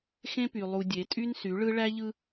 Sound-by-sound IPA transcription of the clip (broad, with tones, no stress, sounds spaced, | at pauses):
x ẽ˦ p y˨ lˠ u˨ dʲ e˨˦ tʼ y˦ n s y˨˦ ɭ ɯ˦ ɭ æ˦ ʎ ɯ˦